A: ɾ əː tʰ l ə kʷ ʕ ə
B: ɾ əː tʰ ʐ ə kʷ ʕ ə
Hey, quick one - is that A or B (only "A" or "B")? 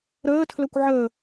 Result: A